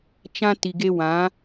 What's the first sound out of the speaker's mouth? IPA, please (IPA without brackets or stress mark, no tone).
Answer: t͡ʃ